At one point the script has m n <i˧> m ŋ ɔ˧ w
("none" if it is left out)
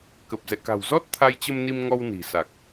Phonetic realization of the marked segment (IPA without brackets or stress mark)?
i˧